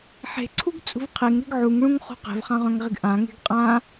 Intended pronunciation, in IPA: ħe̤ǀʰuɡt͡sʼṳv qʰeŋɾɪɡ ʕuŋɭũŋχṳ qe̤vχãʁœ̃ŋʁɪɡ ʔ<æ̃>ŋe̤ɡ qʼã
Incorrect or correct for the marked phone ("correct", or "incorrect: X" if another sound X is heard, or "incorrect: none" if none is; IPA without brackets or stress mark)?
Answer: incorrect: ã